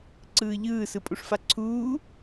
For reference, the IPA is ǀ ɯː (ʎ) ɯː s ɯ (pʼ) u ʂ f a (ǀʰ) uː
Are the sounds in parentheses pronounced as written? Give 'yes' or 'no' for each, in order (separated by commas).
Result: yes, yes, yes